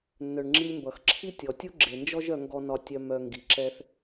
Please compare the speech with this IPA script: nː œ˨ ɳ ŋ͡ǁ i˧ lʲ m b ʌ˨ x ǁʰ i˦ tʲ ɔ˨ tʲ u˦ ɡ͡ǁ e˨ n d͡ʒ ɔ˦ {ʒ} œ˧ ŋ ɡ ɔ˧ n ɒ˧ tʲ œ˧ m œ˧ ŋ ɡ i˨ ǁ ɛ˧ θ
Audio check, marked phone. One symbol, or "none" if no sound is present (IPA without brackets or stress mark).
ʒ